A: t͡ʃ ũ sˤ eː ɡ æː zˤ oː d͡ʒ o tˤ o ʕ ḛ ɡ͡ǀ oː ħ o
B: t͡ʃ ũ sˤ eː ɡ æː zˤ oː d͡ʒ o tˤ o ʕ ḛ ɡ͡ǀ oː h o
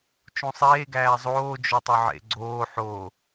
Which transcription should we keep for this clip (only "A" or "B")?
A